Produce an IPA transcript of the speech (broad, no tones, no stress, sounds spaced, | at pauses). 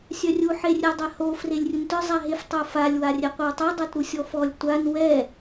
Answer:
sʲ œ rʲ u ħ e rʲ ɛ dˤ ɛ h o f r e lʲ rʲ u n t œ zˤ a ɦ e f tˤ o f a lʲ w a rʲ ɛ qʷ œ w tˤ o dˤ a t ɾ u sʲ ɔ f ɔ lʲ tʷ a n w ɛ